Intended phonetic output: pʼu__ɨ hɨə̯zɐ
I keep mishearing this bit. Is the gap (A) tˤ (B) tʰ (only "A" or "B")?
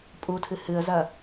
B